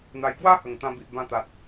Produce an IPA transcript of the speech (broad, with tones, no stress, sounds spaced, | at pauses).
n̪ a˧ j ɡ w a˦ h ə˨˩ ŋ t̪ ã˧ b i˨ ʔ b ã˧ t̪ a˨ t̚